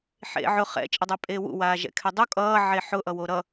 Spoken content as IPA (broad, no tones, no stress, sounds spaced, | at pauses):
ħ ḛ ʕ ʊ χ ɛ̰ t͡ʃʼ ɘ dˤ ɛ pʼ eː w ṵ w aː ʒ ɛ̰ kʰ ɛ dˤ u kʼ ʌː ʕ e ħ ʊ ʔ ʌ w o ɾ ʌ